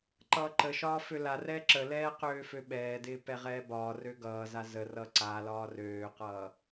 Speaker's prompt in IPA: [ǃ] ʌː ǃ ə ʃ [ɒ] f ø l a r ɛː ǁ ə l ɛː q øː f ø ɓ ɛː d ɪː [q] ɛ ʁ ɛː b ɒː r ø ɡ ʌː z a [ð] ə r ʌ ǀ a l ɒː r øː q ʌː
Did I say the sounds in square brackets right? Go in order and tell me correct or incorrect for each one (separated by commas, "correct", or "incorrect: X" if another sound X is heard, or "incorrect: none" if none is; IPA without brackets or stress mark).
correct, incorrect: ɒː, incorrect: p, incorrect: z